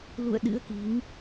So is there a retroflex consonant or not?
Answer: no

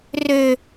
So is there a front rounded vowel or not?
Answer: yes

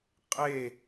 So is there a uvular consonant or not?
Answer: yes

